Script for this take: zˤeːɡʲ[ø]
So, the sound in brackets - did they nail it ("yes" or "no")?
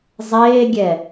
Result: no